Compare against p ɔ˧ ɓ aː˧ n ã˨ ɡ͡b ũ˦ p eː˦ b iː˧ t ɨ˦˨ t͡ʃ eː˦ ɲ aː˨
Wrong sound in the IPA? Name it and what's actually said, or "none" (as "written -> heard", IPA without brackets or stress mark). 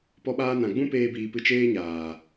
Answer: t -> p